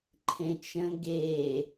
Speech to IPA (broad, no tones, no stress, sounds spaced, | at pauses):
ǃʰ ẽ t͡ʃ ə̃ ɡ e